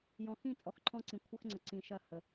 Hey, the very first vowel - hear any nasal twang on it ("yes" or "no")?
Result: yes